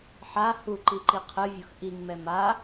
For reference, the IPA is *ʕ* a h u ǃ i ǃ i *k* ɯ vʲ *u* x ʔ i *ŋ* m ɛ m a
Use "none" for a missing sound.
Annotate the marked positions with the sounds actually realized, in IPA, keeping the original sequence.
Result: ħ, qʰ, u, ŋ

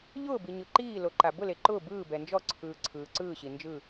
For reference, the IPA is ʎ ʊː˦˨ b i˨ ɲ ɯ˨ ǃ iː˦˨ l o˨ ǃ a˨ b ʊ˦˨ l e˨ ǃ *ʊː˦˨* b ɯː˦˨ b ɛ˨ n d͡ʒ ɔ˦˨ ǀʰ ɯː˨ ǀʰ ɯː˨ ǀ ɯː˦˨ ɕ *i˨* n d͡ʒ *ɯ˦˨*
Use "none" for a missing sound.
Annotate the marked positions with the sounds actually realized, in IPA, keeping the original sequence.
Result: ʊː˦˨, i˨, ɯ˦˨

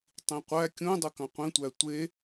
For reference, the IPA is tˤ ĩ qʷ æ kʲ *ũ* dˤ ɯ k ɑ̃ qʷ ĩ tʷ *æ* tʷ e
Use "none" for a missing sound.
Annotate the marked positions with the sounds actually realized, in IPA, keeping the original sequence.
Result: ũ, æ

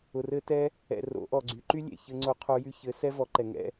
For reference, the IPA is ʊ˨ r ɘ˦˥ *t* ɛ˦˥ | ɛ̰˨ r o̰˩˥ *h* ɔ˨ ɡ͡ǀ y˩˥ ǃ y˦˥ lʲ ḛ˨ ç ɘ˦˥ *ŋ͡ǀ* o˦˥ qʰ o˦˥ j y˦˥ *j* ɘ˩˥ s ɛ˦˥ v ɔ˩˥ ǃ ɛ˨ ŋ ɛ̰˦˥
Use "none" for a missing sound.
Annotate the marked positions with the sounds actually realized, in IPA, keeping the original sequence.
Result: t, ʔ, ŋ͡ǀ, ç

